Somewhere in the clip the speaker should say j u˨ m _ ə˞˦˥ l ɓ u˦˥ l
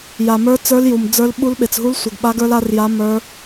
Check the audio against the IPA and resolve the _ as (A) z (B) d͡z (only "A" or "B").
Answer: B